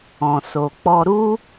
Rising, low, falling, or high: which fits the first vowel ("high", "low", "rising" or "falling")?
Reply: low